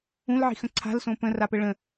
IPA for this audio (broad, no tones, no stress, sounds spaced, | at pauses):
ũ l ʕ i̤ x ə̃ ǀʰ a̤ l s õ p ə̃ r a p ə ɭ ə̃